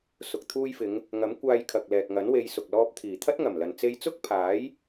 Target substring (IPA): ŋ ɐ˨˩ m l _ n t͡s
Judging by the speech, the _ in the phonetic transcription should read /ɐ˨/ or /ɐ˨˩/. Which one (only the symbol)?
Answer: ɐ˨